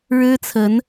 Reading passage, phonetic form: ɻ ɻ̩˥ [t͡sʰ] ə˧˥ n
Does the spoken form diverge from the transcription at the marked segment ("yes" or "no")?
no